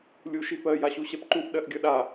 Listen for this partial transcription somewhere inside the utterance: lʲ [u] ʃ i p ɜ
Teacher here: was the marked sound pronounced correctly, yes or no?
yes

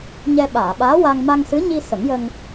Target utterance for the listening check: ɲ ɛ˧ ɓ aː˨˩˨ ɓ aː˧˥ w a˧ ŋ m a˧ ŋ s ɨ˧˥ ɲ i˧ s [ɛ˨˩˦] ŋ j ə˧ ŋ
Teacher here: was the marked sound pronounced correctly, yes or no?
no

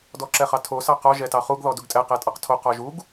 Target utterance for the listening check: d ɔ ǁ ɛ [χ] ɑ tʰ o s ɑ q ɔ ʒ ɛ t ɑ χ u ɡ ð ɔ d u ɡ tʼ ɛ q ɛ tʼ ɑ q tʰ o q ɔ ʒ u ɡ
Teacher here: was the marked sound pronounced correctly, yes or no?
yes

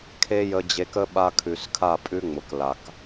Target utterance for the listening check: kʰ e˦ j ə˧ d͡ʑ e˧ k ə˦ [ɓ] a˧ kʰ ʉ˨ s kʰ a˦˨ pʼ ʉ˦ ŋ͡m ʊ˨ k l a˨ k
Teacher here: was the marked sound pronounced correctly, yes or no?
yes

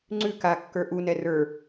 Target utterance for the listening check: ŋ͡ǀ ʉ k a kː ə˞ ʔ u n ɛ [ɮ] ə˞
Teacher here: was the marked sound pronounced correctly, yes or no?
no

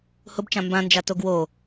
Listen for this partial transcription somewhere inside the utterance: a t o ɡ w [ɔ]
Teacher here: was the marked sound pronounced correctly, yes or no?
no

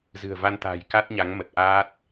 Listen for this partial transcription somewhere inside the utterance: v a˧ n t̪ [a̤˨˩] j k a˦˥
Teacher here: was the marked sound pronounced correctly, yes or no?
yes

